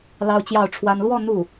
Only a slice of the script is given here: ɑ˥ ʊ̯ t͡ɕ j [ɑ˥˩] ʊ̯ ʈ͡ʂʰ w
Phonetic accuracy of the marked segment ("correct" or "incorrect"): correct